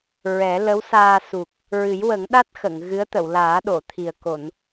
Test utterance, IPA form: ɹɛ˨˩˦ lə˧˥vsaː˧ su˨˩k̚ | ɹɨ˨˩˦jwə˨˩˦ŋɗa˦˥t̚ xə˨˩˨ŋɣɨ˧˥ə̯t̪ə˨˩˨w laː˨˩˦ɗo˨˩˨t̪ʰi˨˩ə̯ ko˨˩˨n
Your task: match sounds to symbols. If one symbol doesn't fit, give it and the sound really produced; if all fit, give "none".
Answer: v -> w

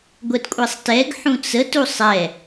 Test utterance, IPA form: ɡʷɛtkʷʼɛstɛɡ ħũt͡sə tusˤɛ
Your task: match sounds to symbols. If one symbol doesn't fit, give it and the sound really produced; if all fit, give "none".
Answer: s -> sˤ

